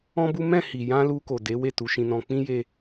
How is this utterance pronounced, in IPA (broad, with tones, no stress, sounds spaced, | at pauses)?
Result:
ɔ̃˦ b u˦ m ɛ̃˦˨ h i˨ j ã˧ l u˧ k o˨ d e˨˦ w e˦˨ t u˨˦ ʃ ĩ˧ n ɔ̃˧ k͡p ĩ˦ j e˧